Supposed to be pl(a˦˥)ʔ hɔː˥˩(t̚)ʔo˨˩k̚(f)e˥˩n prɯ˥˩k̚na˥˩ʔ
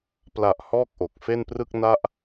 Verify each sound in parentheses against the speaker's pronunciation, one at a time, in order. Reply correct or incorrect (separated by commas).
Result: incorrect, incorrect, correct